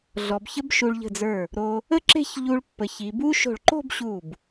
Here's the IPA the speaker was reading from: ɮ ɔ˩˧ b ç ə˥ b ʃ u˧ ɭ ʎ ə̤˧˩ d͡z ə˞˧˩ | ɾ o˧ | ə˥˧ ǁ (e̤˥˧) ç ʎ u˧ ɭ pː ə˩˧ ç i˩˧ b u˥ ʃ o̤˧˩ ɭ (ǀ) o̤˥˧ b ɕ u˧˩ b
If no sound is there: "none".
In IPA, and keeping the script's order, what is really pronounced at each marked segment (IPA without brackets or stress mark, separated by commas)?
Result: e̤˥˧, ǃ